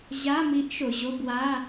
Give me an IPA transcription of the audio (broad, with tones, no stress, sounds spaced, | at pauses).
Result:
ʑ a˧˥˧ m i˧˥ ʔ ʃ o˩˧ ʑ o˧˥˧ b w a˧˥˧